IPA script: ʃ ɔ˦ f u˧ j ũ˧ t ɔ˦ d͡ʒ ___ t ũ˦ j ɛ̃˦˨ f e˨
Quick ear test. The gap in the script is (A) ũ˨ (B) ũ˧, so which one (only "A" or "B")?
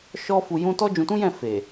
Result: B